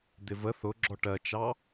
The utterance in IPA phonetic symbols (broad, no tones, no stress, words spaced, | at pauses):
d̪ɪvə θʊɡ͡ǁɔ ʈɜt͡ʃɑ